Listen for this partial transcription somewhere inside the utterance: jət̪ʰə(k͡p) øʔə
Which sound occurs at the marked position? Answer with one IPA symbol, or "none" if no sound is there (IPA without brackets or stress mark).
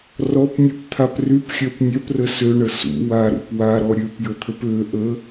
p